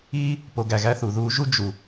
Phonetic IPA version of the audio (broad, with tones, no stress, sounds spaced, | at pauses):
iː˥ | p o˨ ɡ æ˨ ɣ æ˦ θ u˩ ð uː˦ ʒ u˥ d͡ʒ u˩